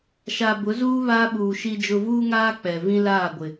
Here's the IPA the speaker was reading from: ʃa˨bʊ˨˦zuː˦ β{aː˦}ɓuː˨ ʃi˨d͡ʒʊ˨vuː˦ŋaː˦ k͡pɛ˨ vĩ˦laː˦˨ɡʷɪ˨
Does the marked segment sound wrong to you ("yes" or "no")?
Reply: no